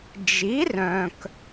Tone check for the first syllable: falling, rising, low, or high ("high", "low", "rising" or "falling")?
rising